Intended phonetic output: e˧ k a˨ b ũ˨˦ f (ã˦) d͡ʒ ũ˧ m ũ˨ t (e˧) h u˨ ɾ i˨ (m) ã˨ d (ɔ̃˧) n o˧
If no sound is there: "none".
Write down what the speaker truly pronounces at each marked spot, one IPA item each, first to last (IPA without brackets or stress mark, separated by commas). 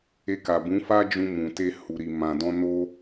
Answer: a˦, e˧, m, ɔ̃˧